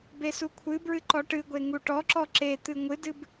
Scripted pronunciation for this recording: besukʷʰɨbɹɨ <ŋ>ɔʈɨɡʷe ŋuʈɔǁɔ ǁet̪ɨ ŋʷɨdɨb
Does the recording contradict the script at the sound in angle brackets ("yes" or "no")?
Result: yes